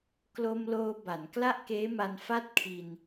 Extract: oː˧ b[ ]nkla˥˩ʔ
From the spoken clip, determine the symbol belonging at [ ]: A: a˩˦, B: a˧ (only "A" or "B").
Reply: A